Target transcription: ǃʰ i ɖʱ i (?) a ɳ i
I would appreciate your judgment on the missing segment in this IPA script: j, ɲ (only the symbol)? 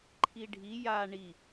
j